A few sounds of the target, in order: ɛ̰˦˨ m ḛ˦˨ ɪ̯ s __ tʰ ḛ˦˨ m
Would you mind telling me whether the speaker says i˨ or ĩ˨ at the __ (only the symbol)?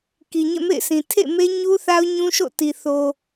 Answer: ĩ˨